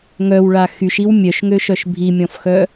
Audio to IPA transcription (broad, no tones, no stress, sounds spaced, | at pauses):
ŋ œ w ɭ a x y ʃ i w mʲ œ ʃ ŋ ø ʃ œ ʃ bʱ i mʲ ɔ̃ f x œ